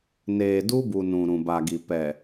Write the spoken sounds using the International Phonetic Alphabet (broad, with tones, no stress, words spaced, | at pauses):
neː˨du˦bu˨ nũ˨ɾũ˨ba˨ɡi˨ pɛ˨